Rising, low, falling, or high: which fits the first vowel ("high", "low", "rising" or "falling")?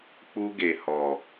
high